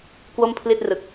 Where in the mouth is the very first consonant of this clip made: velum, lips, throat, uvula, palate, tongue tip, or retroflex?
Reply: velum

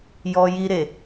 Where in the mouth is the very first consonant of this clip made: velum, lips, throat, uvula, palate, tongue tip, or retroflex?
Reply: palate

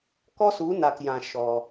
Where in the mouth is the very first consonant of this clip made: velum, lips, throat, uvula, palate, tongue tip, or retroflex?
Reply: velum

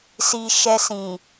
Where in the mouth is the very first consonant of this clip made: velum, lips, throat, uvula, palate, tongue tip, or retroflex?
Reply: tongue tip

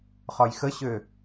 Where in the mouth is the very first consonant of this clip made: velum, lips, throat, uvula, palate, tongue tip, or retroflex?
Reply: uvula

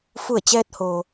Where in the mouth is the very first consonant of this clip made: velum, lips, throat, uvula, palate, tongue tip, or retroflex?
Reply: lips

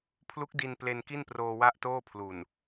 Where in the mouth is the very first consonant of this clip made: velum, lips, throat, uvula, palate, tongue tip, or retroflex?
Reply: lips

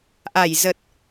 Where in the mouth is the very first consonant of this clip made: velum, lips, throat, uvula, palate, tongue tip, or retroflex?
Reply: throat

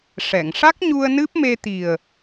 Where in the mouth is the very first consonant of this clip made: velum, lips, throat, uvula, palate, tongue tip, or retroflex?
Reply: retroflex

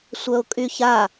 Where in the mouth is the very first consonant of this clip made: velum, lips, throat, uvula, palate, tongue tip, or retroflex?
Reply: tongue tip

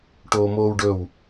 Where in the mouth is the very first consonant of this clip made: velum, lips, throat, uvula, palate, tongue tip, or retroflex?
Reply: retroflex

